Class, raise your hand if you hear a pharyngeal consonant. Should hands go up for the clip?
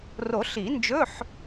yes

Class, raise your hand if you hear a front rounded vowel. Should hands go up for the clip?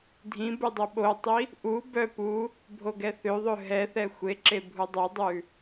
yes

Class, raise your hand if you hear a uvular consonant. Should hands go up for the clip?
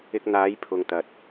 no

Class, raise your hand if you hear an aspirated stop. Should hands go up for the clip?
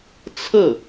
yes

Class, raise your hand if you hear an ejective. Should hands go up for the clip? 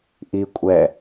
yes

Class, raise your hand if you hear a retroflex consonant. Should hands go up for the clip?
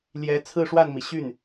yes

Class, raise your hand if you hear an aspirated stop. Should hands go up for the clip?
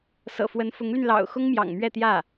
no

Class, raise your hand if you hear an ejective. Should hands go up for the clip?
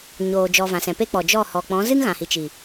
no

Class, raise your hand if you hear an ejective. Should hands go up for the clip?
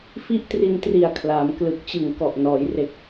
no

